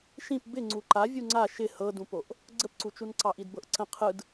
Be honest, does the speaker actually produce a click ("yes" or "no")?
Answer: yes